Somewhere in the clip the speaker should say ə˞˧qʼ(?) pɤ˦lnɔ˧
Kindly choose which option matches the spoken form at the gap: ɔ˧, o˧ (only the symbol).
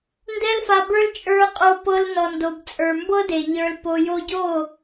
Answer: o˧